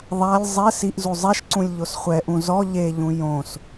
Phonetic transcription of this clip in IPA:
ðˤ a lʲ zˤ ɛ s i ʔ z u zˤ ɛ ʃ ǀ ũ lʲ ʎ o s χʷ ɛ ʔ ũ z ɔ ʎ e ʎ ũ j õ s

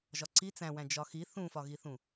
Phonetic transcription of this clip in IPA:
ʒ ɒ ǀ i t͡s æ̃ w æ̃ d͡ʒ ɒ x i θ ũ f ɒ ɣ i θ ũ

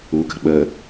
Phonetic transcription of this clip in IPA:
u k ə̤ ɓ ə

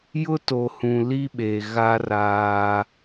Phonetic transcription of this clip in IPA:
j ʊ˦ t o˨ h ũ˨ l i˦ ɓ e˨ ɣ a˦ r aː˦

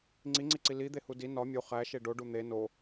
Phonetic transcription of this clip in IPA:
ŋ͡ǀ i ŋ͡ǀ i ǀ i l i d̪ e h u d i n ɒ mʲ u χ æ ʃ e ɖ o ɖ u n̪ e n o

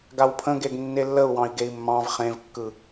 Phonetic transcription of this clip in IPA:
ɡ a w pʰ ə̃ ɡ e ɡ nː e lː ə u̯ w ɑ̃ i̯ ɡ e i̯ mː ɑ̃ v χ ẽ v kː ɯ

